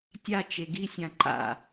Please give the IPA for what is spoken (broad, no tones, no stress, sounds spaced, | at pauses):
tʲ a t͡ʃ e ɡ i sʲ ã ǃ a̰